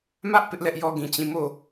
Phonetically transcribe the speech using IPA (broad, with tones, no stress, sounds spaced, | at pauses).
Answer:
m ä˦ ʔ p ɪ˦ ʔ l ɛ˦ ʔ j ɔ˦ ɡ ĩ˨ t͡ɕ ĩ˦˨ m o˦˨